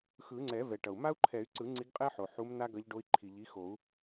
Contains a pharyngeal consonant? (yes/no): yes